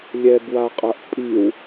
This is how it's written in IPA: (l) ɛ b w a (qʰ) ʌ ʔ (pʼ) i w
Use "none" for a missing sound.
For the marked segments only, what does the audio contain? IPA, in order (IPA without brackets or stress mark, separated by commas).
lʲ, qʼ, pʼ